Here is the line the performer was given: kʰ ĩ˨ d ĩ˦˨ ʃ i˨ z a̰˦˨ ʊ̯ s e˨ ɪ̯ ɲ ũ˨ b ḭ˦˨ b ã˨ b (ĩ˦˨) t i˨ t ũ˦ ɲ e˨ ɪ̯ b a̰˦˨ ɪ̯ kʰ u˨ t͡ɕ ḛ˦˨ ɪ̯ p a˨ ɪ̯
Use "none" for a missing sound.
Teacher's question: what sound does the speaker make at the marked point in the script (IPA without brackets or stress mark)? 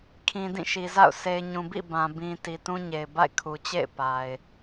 ĩ˨